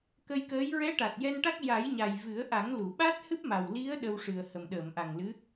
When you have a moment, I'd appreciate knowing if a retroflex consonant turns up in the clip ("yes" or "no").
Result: yes